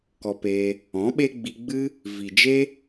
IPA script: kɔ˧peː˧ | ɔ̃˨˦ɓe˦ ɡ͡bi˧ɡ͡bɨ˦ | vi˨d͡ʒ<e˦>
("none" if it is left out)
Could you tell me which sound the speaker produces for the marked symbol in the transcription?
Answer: e˦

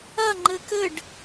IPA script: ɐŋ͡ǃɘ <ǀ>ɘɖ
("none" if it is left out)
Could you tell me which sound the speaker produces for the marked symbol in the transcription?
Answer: k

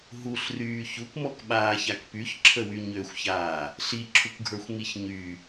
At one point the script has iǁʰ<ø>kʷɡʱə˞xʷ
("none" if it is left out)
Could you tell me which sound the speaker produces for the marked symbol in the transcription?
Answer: u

